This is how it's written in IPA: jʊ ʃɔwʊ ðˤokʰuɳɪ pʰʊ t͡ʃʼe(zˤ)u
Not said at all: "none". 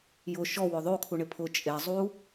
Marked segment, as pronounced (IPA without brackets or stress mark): zˤ